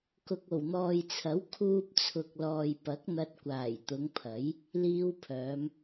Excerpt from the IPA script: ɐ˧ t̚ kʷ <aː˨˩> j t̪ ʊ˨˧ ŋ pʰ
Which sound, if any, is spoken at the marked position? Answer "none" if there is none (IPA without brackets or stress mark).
aː˨˩